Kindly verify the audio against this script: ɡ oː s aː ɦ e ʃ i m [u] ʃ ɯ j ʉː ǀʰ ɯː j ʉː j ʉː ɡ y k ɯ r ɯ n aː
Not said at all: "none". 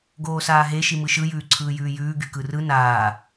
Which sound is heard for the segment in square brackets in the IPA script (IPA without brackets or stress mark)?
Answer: ɯ